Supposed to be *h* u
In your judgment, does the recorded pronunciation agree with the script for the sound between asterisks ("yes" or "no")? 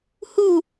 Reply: yes